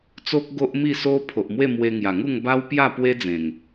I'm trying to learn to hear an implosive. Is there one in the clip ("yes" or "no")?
no